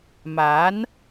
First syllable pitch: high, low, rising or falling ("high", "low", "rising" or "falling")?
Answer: rising